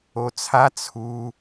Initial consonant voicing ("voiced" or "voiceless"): voiceless